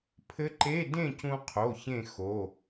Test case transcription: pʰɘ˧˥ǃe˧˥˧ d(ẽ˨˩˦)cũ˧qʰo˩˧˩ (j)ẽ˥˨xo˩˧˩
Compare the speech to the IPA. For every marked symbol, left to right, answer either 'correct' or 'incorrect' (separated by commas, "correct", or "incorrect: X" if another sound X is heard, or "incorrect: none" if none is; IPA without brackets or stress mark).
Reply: incorrect: ẽ˥˨, incorrect: ç